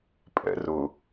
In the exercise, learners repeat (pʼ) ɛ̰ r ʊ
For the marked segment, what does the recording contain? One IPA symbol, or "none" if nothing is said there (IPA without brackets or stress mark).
pʼ